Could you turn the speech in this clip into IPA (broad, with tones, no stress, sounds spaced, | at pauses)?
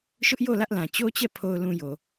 ʃ ʊ˦ ʔ j o˦˨ l ä˦ ʔ l ã˨ t͡ɕ o˦ t͡ɕ ɛ˦˨ pʰ o˨ ʊ̯ l ũ˨ j o˨